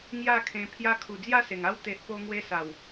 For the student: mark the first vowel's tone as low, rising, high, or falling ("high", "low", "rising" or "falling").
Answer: falling